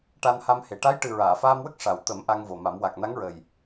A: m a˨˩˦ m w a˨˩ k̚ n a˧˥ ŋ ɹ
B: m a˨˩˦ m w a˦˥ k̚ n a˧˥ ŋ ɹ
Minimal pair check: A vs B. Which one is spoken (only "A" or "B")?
A